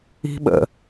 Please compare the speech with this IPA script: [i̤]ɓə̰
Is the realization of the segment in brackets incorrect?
no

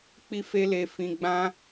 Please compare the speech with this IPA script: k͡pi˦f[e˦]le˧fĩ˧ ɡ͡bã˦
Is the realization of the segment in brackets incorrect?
no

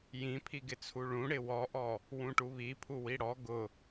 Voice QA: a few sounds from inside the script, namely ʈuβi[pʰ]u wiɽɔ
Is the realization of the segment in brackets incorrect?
no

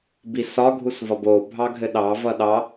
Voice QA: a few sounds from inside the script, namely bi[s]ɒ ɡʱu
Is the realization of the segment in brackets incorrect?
no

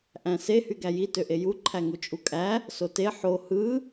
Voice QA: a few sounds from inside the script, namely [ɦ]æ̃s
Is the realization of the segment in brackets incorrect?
yes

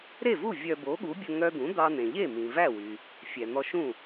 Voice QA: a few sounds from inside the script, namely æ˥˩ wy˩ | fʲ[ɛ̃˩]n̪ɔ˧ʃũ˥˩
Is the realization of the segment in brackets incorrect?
yes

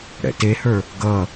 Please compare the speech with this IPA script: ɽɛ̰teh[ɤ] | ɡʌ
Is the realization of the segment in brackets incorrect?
yes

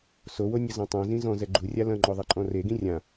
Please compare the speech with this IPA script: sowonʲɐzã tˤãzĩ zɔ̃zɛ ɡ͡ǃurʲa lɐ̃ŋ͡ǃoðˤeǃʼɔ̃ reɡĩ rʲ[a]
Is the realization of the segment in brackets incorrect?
yes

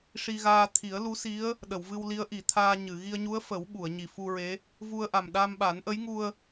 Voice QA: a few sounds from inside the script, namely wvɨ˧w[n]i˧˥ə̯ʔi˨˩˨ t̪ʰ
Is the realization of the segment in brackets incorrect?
yes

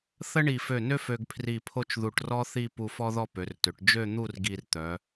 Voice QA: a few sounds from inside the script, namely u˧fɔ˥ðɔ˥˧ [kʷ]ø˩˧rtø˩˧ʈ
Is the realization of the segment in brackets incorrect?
yes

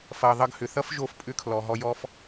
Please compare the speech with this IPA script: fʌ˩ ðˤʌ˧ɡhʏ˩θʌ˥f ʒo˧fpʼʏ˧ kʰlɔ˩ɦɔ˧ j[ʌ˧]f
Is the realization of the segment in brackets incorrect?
yes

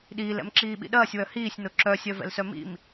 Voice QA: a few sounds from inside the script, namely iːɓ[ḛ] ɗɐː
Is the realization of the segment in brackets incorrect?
yes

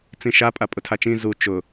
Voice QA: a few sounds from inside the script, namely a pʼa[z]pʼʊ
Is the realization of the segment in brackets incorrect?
yes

